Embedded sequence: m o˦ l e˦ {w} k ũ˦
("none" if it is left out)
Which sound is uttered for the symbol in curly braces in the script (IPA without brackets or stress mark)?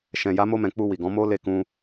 none